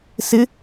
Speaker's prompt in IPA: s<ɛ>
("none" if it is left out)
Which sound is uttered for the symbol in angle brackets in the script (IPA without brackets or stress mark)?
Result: ɪ